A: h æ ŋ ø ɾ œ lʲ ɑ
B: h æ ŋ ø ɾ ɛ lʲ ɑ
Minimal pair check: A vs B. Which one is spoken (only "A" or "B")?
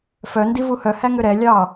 B